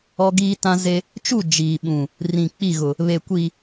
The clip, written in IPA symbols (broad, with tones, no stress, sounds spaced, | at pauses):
ɔ˦ ɡ iː˦ t ã˦ z e˦ | t͡ʃ u˦˨ d͡ʒ iː˨ ɓ ũ˨ | r ĩ˨ k͡p i˦˨ ɣ ʊ˨ | β e˨ kʷ i˨